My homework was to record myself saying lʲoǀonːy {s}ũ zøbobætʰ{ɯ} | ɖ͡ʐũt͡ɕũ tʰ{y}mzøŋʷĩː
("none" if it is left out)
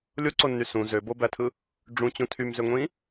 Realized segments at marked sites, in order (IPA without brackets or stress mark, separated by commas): s, ɯ, y